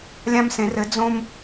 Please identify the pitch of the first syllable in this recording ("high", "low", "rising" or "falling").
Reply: high